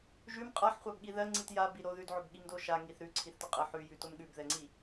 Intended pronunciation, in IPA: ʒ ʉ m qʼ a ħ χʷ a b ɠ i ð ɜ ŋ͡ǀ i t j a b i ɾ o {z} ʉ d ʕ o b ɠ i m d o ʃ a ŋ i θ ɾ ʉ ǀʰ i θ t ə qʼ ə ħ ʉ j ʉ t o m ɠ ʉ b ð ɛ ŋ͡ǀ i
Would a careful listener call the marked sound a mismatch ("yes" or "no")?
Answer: yes